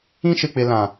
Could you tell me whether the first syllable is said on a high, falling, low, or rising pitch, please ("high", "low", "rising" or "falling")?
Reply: high